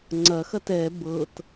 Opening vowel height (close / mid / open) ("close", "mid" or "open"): open